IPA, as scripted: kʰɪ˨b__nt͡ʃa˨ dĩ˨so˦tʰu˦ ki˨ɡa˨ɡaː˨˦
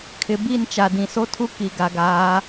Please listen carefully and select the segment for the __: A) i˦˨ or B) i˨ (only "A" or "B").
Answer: A